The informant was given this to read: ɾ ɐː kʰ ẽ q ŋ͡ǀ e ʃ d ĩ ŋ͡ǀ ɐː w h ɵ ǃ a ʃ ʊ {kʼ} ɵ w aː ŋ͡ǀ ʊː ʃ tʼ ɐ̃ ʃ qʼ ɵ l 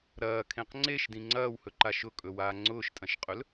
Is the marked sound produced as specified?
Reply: yes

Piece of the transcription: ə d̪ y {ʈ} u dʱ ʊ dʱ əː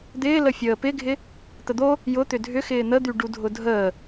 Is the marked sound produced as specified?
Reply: no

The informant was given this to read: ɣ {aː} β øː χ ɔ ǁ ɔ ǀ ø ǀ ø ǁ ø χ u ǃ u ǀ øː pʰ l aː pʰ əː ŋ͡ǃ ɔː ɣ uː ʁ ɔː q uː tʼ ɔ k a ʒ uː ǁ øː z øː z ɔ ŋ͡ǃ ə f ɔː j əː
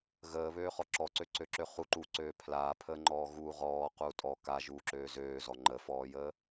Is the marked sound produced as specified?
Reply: no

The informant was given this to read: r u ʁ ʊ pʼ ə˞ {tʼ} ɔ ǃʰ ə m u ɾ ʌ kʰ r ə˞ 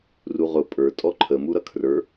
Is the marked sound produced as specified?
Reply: yes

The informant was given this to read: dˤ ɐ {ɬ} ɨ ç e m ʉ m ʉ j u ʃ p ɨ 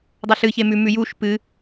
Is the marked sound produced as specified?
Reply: yes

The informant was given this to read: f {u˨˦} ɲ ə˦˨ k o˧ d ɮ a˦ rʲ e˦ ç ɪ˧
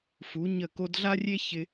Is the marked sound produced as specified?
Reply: yes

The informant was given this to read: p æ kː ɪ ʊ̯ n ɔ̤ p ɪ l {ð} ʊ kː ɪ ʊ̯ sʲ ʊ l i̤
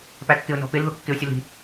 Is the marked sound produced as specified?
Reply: yes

